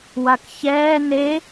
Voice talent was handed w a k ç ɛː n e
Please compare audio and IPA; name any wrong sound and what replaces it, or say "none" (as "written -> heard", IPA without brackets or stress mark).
none